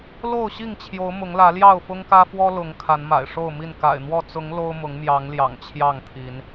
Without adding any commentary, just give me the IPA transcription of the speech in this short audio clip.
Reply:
l o˥˨ ʊ̯ ɕ i˥˨ ŋ t͡ɕʰ j o˨˦ ʊ̯ m ʊ˨˦ ŋ l ä˨˦ l j ɑ˥˨ ʊ̯ f ʊ˦ ŋ k ä˦ f w ɔ˦ l ʊ˨˦ ŋ kʰ a˨˦ n m a̰˨˩ ɪ̯ ʂ o˥˨ ʊ̯ m i˥˨ n k a̰˨˩ ɪ̯ n̪ w ɔ˥˨ t͡s ʊ˨˦ ŋ l o˦ ʊ̯ m ʊ˨˦ ŋ m j ɑ˨˦ ŋ l j ɑ̰˨˩ ŋ t͡ɕʰ j ɑ˥˨ ŋ t̪ʰ i˨˦ n

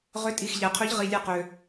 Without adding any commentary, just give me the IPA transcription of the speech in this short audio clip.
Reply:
ʁ ʏ˨˥ tʼ i˩˧˩ x ʎ ɛ˩ qʰ ø˨˥ ʎ ʁ i˩˧˩ lʲ ɛ˧˩ q ø˩

